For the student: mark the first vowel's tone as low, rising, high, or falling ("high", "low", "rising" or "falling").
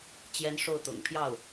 high